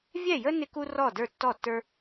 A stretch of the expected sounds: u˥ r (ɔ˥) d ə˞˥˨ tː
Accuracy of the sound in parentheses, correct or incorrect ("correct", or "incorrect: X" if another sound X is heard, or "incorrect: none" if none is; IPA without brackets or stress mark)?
incorrect: ɔ˥˨